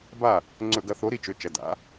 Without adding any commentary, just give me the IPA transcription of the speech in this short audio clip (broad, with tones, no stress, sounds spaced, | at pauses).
b a˥˨ | ŋ͡ǀ ɵ˧˩˧ ɡ ɐ˨˦ θ o˨˦ ɾ i˨˦ t͡ʃ ɵ˩˧˩ t͡ʃ ɐ˩˧˩ d a̰˨˦